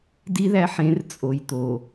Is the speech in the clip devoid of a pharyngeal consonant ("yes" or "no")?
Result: no